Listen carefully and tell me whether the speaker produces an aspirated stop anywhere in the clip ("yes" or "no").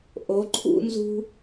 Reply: yes